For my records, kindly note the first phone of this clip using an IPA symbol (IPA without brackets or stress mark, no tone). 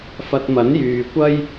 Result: f